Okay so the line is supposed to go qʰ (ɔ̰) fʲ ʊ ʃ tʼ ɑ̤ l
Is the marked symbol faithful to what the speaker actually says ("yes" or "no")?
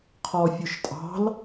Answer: no